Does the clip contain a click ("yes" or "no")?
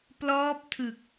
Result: no